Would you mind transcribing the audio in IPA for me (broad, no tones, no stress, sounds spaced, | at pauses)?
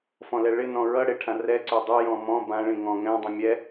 f ɔ̃ l ɛ ɭ ɪ n ɔ̃ ɹ ʌ ɽ ɪ ʈʰ ã r ɛ ǀ ø dˤ ʏ j ɔ̃ m ɔ̃ b ã ɭ ĩ ŋ ɔ̃ ŋ ɛ̃ dˤ ĩ mʲ ɛ